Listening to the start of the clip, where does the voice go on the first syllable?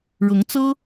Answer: rising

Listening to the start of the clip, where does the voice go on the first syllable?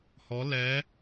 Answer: rising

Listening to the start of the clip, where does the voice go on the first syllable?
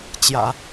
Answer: low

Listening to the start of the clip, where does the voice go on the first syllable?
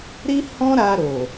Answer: high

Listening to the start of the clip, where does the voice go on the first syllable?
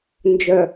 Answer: low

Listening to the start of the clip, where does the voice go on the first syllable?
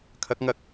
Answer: rising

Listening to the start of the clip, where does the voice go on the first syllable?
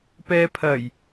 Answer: low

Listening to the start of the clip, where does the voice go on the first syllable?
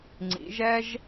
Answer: rising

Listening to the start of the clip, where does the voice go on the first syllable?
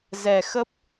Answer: low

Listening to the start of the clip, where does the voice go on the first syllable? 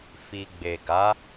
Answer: low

